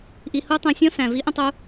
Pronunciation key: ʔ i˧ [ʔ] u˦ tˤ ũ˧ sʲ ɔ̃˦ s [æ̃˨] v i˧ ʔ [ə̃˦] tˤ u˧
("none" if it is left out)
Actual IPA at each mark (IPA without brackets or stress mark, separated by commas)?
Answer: h, æ̃˨, ə̃˦